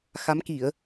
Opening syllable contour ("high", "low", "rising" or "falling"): rising